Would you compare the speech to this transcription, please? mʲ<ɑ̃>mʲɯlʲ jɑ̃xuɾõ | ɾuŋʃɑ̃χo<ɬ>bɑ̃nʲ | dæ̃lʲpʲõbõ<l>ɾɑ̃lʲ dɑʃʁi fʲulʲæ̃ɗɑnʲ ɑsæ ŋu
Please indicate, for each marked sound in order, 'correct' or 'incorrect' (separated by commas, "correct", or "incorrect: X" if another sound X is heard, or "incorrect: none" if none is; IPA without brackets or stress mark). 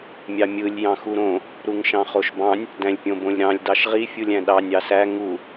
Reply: incorrect: ɑ, incorrect: ʃ, incorrect: lʲ